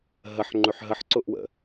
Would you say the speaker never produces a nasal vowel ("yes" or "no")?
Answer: yes